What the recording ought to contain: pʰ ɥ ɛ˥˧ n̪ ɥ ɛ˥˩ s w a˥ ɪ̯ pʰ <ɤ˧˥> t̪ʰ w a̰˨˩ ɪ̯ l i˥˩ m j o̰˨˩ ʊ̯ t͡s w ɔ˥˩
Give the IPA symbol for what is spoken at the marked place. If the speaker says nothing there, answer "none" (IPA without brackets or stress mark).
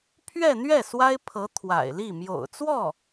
ɤ˧˥